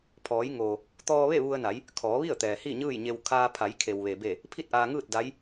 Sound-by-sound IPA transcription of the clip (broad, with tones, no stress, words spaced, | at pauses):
pʰɔː˩˧jŋoː˩ | t̪ɔː˧ʋe˥˨ ʋu˧ə̯na˩˧j | kʰɔː˩˧ʋi˥˨ə̯t̪ɛː˩ hi˥˨ɲɯː˥˨jɲe˧w kʰaː˧pʰa˩˧j kʰe˩wʋe˩be˧˩ | pʰi˥˨t̚ʔaː˧ŋɯː˥˨t̚ da˧˥j